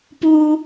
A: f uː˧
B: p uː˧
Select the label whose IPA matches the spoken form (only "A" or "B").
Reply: B